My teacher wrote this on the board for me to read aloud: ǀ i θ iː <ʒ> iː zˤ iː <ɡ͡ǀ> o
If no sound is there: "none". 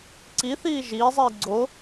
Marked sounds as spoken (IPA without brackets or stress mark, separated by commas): ʒ, ɡ͡ǀ